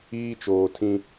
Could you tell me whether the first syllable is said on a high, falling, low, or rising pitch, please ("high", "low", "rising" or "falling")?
high